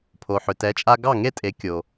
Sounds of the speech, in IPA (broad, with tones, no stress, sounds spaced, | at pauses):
pʰ o˩ ħ ʏ˩ t ɛ˩˥ t͡ʃʼ a˧ ɡ ɑ˥˩ ŋ e˥˩ tʼ e˩˥ kʲ o˩